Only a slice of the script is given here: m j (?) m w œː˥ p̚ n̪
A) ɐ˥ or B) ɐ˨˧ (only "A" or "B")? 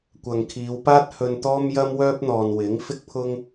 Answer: A